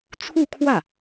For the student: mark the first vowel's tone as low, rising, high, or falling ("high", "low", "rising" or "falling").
falling